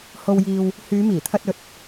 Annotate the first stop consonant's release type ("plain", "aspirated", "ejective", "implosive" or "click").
aspirated